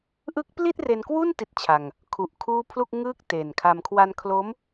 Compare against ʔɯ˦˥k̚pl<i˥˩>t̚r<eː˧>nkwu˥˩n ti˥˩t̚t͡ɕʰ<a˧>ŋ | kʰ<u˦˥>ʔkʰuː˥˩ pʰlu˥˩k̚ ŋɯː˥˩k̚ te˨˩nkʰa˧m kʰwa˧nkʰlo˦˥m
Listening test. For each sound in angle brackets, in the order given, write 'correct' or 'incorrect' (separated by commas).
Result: correct, incorrect, correct, incorrect